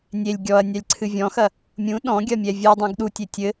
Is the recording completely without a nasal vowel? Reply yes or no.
no